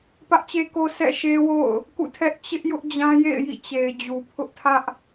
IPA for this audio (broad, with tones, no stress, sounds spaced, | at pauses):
p ä˦ ʔ t͡ɕ e˦ k o˦ sʰ ɛ̰˦˨ ʃ e˦ w o̰˦˨ ʊ̯ | k ṵ˦˨ tʰ ɛ˦ ʔ t͡ɕ ɪ˦ ʔ j ʊ˦ ʔ d͡ʑ ã˦ j ḛ˦˨ ɪ̯ j ḭ˦˨ t͡ɕ e˨ ɪ̯ d͡ʑ u˨ pʰ ʊ˦ ʔ tʰ ä˦ ʔ